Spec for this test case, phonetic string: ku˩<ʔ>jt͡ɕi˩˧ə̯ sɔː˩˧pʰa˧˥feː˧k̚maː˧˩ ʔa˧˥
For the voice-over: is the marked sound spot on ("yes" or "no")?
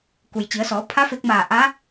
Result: no